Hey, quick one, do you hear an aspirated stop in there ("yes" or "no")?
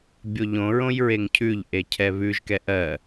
yes